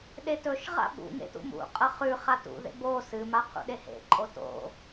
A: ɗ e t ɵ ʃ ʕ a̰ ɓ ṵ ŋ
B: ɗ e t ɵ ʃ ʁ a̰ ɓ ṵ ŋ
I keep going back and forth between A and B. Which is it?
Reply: B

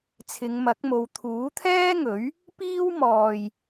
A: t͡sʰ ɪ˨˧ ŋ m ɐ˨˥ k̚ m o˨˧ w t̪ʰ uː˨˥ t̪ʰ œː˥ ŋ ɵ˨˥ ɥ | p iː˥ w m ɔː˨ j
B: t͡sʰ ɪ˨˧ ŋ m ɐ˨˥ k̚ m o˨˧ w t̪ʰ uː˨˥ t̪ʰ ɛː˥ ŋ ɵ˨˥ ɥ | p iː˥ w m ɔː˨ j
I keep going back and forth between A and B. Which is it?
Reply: B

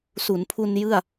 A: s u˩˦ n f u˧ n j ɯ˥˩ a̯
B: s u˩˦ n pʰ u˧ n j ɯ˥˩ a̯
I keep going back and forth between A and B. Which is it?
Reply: B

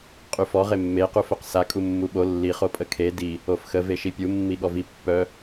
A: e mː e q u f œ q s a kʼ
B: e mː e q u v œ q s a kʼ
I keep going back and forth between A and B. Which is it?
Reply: A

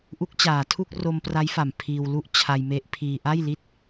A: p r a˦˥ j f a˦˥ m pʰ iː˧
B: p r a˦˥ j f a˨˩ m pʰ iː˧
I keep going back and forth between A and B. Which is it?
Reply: B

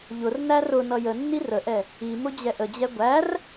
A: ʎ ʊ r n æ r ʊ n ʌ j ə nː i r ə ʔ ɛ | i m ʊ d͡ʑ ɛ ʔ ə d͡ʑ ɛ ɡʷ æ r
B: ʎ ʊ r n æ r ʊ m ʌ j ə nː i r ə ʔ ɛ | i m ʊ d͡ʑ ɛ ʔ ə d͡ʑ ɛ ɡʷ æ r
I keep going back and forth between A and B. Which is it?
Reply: A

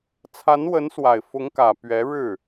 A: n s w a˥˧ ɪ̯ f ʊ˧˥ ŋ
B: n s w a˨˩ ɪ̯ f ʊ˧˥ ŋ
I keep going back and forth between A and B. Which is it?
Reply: B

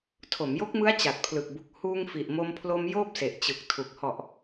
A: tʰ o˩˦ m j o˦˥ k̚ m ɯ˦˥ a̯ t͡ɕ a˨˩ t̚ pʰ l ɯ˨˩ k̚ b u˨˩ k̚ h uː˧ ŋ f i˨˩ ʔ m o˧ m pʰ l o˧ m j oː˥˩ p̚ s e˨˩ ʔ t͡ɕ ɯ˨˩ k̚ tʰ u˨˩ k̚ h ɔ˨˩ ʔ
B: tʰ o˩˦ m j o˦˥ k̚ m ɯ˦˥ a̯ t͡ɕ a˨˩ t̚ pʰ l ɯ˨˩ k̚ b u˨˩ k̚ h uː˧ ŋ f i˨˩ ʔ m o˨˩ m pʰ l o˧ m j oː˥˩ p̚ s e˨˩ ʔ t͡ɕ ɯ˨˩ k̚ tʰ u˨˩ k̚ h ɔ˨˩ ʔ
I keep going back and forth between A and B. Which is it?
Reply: A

